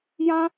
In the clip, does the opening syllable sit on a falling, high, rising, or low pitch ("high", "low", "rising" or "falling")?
high